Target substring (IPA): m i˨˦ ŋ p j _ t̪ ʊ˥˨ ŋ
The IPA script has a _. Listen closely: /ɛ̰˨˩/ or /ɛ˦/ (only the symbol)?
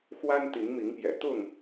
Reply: ɛ̰˨˩